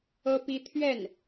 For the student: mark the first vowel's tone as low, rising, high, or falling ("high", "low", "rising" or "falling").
high